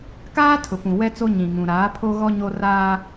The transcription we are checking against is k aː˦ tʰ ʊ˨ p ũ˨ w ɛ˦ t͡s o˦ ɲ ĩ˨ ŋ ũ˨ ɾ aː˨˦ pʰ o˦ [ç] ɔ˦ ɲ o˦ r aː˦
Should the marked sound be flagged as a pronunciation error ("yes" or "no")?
yes